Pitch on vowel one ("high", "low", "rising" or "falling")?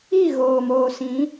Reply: falling